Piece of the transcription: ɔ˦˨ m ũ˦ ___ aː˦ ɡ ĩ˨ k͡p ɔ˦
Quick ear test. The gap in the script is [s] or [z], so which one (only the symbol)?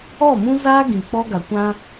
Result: z